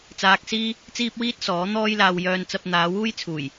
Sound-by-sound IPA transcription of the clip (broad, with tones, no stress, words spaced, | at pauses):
t͡saː˧k̚siː˥ | t͡siː˥p̚wiː˥t̚ sɔː˨˥ n̪ɔː˥jlaː˧w jœː˧nt͡sɐ˧p̚ n̪aː˨˧wuː˥jt͡sʰuː˨˩j